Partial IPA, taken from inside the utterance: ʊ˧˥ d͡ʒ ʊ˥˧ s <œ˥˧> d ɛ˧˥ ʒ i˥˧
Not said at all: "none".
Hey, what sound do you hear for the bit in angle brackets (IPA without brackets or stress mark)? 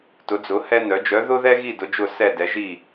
ɛ˥˧